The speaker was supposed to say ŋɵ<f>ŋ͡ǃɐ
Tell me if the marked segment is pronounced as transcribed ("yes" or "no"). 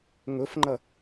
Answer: yes